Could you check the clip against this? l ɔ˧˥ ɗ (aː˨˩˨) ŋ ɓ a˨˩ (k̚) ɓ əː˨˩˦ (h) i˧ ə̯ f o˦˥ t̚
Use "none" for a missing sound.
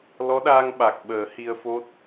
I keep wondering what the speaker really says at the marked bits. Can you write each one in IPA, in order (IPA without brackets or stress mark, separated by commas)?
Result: aː˧, k̚, h